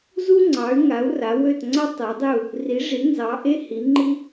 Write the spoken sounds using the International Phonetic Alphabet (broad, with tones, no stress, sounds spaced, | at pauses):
z u˥ ŋ͡ǀ ɑ˨˥ y̯ ŋ a˨˥ u̯ r a˨˥ w ø˥˨ t ŋ͡ǀ a˥ tˤ ɜ˨˥ dˤ ɪ˥˨ u̯ | r i˨˥ ʐ i˨˥ n z ɑ˨˥ ʔ e˥ h i˨˥ ŋ͡ǃ i˥